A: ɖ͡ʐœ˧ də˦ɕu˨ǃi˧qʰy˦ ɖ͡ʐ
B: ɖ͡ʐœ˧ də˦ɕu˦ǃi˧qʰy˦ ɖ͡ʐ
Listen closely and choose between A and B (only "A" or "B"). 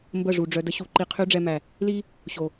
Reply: A